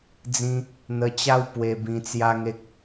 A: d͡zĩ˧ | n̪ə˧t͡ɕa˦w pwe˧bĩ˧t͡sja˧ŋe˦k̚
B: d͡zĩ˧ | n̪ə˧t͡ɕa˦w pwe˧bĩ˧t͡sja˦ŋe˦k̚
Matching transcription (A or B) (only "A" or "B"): B